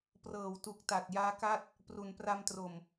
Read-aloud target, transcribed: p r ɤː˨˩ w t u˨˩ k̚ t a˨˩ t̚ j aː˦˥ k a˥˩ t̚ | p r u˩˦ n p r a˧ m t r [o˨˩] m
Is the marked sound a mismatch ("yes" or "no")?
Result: no